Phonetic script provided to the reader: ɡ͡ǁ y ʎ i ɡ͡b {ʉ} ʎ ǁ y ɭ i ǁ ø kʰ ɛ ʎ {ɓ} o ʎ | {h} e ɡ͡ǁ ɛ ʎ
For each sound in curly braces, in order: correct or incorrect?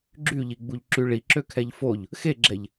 incorrect, incorrect, incorrect

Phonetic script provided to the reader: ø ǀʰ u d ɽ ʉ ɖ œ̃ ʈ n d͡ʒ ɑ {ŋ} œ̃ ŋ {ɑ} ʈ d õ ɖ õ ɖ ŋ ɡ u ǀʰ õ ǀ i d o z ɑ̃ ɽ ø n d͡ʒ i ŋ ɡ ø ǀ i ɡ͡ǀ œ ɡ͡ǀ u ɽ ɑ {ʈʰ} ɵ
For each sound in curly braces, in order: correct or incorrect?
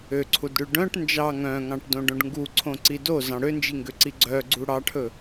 correct, incorrect, correct

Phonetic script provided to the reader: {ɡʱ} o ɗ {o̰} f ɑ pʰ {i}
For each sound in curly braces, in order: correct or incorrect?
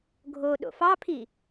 correct, correct, correct

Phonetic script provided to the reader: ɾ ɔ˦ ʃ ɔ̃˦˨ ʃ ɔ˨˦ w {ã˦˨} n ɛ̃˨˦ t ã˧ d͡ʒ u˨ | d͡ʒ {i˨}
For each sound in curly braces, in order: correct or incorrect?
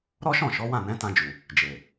correct, incorrect

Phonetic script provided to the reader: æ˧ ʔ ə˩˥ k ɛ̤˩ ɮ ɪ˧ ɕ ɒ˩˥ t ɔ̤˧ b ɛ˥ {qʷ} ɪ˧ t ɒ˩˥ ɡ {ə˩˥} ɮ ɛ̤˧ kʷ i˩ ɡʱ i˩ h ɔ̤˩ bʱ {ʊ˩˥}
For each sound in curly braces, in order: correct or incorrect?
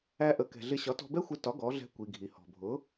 incorrect, incorrect, correct

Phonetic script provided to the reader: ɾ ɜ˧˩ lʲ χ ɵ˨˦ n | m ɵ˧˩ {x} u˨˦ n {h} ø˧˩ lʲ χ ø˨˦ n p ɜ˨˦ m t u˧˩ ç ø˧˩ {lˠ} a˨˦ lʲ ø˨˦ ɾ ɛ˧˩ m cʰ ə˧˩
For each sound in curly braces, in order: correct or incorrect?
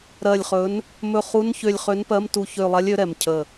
incorrect, incorrect, correct

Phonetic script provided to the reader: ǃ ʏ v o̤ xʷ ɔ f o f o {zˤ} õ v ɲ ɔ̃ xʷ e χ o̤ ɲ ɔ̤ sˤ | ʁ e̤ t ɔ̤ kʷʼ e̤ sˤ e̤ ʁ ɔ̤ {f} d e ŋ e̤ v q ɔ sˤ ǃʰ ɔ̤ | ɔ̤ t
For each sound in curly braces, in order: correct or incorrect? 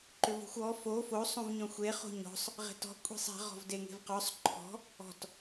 incorrect, incorrect

